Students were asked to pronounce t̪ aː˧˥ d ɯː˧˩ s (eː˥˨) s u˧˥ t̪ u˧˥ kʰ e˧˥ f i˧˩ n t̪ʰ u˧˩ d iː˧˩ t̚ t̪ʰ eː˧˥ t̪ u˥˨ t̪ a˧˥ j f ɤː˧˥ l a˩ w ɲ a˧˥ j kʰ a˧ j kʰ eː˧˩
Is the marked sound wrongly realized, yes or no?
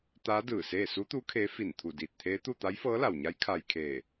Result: no